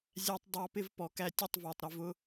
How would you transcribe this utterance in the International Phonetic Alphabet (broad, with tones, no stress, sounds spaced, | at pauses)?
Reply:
zʲ æ˧ tˤ dˤ ɑ˧ p ɪ˧ v p ɔ˨ k æ˧ tʲ ə˦˨ tˤ v ɑ˨ tˤ ɾ ɪ˧ v ʊ˦